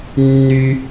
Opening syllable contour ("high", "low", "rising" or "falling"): high